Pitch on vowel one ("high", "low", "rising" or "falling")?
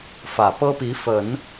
low